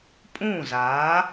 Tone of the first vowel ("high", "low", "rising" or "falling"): falling